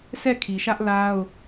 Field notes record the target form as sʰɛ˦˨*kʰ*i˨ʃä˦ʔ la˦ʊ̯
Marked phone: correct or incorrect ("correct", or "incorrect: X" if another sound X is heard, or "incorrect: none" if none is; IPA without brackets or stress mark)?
correct